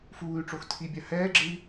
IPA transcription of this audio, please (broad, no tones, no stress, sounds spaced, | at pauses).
f uː y̯ ʈ͡ʂ o x tʰ i bʲ a h ɛː ɡ͡ǁ ɯ i̯